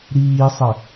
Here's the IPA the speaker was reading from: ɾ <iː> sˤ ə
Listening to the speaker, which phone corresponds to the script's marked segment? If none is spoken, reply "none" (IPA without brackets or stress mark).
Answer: iː